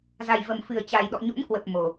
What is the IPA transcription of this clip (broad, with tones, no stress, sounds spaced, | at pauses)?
z a˨˩ j v ə˨˩ m f ɨ˨˩ ə̯ t͡ɕ a˨˩ j ɗ ɔ̰˧˨ ɲ o̰˧˥ n k w ə˨˩ p̚ m o˨˩